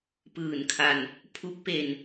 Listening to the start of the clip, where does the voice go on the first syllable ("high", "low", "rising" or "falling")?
low